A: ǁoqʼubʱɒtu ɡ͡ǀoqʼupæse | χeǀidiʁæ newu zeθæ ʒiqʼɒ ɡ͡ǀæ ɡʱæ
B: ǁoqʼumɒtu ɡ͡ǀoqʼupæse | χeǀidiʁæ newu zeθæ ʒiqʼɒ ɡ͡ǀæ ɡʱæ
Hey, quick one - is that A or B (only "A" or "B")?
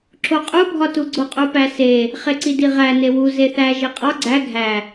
A